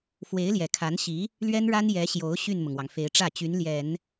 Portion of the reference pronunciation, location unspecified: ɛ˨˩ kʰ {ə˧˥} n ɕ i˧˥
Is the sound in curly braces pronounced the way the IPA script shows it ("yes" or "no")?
no